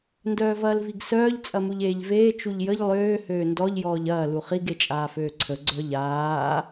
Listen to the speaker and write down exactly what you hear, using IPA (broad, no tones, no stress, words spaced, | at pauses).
ndœːvɐːlviɡsœːʎ t͡sʼɐmuʎeːʎveː t͡ʃuʎjəʎ lˠøː høːndɔʎ jɔːʎɐː luχiɡ et͡ʃʼaːføːǀʰə ɡ͡ǀœʎaː